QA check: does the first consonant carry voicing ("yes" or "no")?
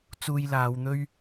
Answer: no